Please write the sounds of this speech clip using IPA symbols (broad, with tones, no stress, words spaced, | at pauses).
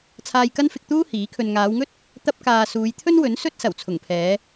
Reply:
t͡sʰaː˧jkɐ˥nfɪ˧k̚t̪uː˥ hiː˨˥kʰɵ˧n ŋaː˨˧wŋɵ˥t̚ | t̪ɐ˥p̚kaː˧ suː˨˧jt̪ʰɵ˥nwɵ˨˥n sɵ˥t̚ sɐ˨˩w t͡sʰʊ˨˩ŋpʰɛː˨˧